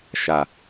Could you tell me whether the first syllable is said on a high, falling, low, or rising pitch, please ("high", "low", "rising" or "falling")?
low